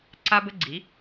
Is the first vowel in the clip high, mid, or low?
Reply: low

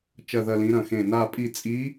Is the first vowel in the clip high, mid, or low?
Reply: low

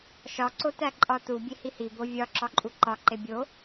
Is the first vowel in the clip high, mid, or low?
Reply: low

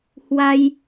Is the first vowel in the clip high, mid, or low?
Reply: low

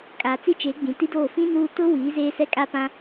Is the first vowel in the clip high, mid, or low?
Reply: low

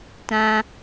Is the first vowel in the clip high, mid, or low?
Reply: low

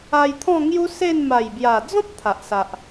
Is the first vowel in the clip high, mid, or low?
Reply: low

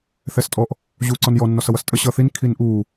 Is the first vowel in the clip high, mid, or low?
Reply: mid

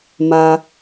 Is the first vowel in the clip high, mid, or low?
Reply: low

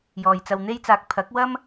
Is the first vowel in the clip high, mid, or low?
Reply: mid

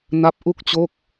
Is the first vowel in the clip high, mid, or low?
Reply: low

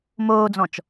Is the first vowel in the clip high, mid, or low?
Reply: mid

